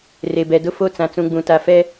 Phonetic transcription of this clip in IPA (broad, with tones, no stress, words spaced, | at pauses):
re˨bɛ˨ dʊ˦fo˦˨ t͡sã˨t͡sũ˨ɡ͡bũ˨ ta˨fɛ˦